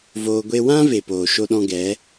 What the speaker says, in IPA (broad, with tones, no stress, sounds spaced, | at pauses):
v oː˧ ɡʷ e˦ w ã˦ v e˨ p oː˨ ʃ o˦ ɗ ɔ̃˦ ɡ ɛ˨˦